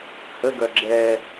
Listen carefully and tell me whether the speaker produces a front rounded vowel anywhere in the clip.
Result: yes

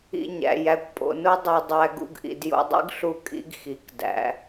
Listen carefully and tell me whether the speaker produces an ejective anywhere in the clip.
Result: yes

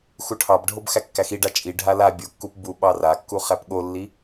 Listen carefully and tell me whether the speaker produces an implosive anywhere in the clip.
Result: yes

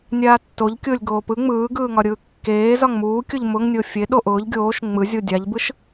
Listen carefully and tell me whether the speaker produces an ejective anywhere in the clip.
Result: no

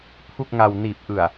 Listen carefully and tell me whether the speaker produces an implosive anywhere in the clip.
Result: no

